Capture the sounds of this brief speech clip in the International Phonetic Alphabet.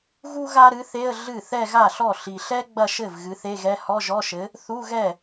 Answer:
ɣu˥ ɣa˥ɾɨ˨˥θe˧˥˧ə̯ ɮɨ˥˩ θɛ˥˧ɣa˥˩ɬɔ˥˩ ɬi˨˩ɬɛ˥ ɡ͡bɐ˥˧ʃɘ˥˩v ɣɨ˨˥θe˧˥˧ɣɛ˧˥˧ hɔ˧˥˧ʒɔ˧˥˧ʃɘ˨˥ | θu˧˥˧ɣɛ˥˩

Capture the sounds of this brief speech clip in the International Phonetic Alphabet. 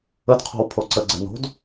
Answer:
ədqʰo̤w pʰoǀəɡ͡ǀə no̤d

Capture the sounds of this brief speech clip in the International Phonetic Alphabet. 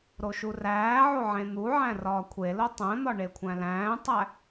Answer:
ɾoʃuræːʕo ʕẽn̪uʕæ̃ rɒːkʷʰelo tˤæ̃n̪ɒ ɳekʷʰæ̃læ̃ːtˤæ

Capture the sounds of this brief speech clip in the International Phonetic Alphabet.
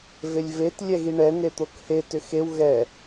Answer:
velʲvet lʲɛɣiɳɛ net̪okhe tʏxew ɣɛ

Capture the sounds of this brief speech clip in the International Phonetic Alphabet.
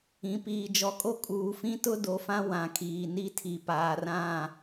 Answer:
ĩ˨piː˨ d͡ʒɔ˨kʼo˦ kʼuː˨fĩ˦tʊ˦ do˨fã˦ wã˨kʰiː˨ni˦tʰi˨ paː˨r ã˦˨

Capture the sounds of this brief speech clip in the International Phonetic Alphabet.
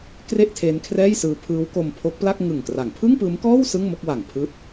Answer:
kre˥˩ʔtʰe˦˥nkʰrɛː˥˩jsɯː˦˥ pʰɯː˦˥wko˧m pʰo˦˥k̚pla˥˩k̚ŋɯ˨˩ŋ kra˩˦ŋpʰɯ˥˩ŋpɯː˦˥mkɔː˥˩w sɯ˥˩ŋmo˥˩k̚wa˨˩ŋ pʰɯː˦˥t̚

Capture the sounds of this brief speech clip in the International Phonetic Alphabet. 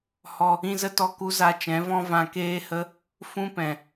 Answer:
hɔ˧ | ĩ˦zə˦tɔ˦ku˦ za˧t͡ʃɛ̃˨˦vɔ̃˦ vã˧keː˦hə˦ | fũ˦pɛ̃˨

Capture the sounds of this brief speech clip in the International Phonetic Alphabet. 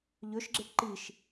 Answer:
ʎɵʃɡ͡ǁeʈ ǃiʃ

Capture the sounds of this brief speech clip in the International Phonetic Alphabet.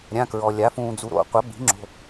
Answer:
ɾʲã˧˥˧ kɹɔ˧lʲa˨˥ fũː˧d͡zu˧ɾo̰˨˥ qʷɐ˨˥bi̤˨˥ ŋ͡ǁo̤˧˥˧

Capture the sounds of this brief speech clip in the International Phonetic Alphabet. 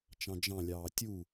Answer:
t͡ʃɑ̃d͡ʒɑ̃lʲɑː tʲu

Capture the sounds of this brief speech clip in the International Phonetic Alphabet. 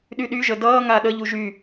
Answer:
ɗyɗyʒə dʌːŋa ɗəʎu ʒy

